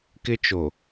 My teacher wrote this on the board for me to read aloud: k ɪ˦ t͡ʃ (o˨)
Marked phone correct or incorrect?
correct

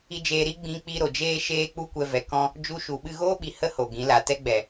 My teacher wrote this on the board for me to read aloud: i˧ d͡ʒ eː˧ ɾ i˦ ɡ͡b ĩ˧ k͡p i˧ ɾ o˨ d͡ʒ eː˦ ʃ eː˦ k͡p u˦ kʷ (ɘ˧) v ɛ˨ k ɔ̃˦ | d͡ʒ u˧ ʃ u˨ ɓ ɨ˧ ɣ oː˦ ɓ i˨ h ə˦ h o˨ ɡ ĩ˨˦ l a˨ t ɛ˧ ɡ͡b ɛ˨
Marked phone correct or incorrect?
incorrect: ɛ˧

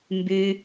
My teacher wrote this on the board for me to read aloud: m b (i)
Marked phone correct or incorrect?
incorrect: y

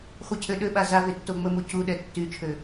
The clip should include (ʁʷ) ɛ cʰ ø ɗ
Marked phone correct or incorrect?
incorrect: χʷ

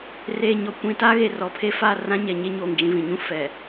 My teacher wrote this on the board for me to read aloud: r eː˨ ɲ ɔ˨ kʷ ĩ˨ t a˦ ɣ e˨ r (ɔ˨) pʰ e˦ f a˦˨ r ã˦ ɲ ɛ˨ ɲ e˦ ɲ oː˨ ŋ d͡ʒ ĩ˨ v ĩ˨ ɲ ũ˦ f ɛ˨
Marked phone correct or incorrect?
correct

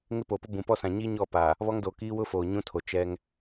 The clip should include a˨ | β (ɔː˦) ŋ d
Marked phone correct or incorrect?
incorrect: ɔ˦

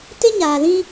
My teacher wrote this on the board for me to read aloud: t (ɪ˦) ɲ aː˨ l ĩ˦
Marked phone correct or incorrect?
correct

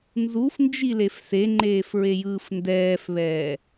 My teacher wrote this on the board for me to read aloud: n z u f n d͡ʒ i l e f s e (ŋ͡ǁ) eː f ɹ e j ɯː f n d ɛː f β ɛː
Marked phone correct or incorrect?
incorrect: ŋ͡ǃ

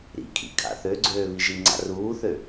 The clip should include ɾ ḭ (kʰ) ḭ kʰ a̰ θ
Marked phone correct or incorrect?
correct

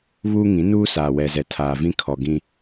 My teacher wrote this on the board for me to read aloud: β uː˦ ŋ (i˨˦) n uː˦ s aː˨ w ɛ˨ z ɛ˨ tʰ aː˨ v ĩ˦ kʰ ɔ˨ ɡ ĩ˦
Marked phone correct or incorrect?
incorrect: ĩ˨˦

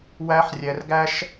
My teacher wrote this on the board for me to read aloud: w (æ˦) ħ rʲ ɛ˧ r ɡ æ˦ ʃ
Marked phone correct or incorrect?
correct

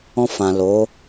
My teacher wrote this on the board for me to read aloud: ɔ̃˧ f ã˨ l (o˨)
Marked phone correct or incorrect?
incorrect: o˨˦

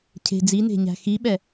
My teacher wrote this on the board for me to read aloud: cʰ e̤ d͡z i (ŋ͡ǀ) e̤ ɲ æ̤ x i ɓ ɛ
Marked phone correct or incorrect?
incorrect: n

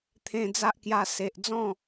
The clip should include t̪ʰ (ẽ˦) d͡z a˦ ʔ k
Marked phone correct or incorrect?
incorrect: ẽ˧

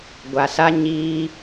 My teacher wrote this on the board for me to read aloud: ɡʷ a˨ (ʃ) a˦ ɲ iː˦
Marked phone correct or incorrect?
incorrect: s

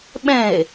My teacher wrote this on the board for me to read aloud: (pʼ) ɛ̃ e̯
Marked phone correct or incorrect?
incorrect: ɓ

